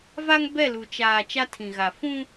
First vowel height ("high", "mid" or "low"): low